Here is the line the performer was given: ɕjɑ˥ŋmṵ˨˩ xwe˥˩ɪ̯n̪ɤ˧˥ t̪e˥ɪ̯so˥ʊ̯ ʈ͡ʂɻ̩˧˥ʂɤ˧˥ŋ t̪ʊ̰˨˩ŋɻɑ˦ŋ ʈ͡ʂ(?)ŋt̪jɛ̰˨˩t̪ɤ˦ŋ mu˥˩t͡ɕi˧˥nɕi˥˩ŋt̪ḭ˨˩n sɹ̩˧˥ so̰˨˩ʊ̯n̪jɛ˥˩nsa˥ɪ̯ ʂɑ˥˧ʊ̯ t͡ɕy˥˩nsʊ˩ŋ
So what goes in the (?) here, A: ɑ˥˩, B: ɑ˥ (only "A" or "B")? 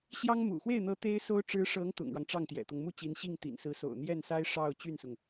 A